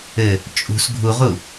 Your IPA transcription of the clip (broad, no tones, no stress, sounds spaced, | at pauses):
ɘ | t͡ʃʼ ṳ s ɡʱ u ʁ u